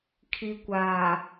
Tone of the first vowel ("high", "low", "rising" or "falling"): low